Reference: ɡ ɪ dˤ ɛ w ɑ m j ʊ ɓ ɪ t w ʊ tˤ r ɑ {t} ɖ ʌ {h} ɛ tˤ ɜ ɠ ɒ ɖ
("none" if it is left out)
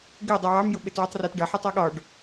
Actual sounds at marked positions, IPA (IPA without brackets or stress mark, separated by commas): t, ħ